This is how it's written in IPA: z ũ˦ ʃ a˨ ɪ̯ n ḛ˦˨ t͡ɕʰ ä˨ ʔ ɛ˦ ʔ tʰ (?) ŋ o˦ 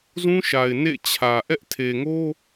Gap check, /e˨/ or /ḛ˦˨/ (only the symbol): e˨